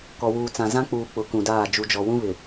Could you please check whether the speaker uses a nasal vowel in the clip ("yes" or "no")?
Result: yes